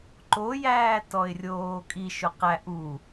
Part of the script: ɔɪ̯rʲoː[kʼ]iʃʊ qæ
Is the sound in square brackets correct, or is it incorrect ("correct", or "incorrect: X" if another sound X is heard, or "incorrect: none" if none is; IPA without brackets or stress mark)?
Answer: correct